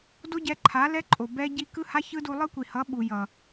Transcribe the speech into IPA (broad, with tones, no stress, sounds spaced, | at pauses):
d o˦ ɟ ɛ˧ ǃʰ a˨˦ l ɛ˦ ǃʼ o˨ b ɛ˧ ɟ i˧ k ɯ˦ h a˦ ç ɯ˦ d u˧ lˠ ɯ˦ kʷ i˨ h ʌ˨˦ ɓ u˨ j ʌ˨